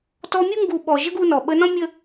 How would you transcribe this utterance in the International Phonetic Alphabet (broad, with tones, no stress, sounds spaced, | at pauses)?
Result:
t ɔ˧ mʲ u˦ ŋ ɡ u˧ ɓ ɔ˨ ʒ ə˦ ɡ u˧ n ɔ˨ ɓ ə˧ n ɔ̃˦ mʲ ə˦